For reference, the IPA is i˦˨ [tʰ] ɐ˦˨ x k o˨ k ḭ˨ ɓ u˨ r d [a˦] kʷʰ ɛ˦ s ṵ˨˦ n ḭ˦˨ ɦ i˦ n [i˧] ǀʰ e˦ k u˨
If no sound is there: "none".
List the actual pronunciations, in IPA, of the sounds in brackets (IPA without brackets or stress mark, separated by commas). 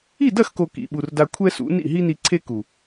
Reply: d, a˧, i˧